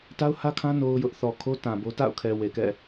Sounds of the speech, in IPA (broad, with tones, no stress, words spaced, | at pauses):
ta˦ʊ̯hä˦kʰã˦ no˦ʊ̯jʊ˦ʔ θɔ˨kʰo˦ tã˨bo˦ ta̰˦˨ʊ̯kʰɛ˨ we˨kɛ̰˦˨